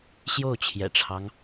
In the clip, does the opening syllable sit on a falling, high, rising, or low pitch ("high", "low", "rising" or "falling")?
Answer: falling